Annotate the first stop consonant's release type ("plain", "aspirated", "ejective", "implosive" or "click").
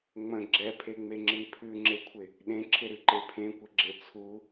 click